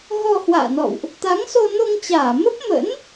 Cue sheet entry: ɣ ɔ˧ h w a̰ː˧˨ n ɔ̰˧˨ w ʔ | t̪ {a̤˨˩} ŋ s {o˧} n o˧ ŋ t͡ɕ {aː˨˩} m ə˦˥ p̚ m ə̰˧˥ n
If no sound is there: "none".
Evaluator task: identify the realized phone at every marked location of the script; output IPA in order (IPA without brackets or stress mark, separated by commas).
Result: a˨˦, o˧, aː˧˩